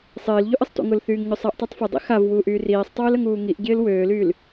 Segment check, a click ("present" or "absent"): absent